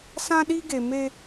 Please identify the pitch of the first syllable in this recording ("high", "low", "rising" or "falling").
high